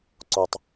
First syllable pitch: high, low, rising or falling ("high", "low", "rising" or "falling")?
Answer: low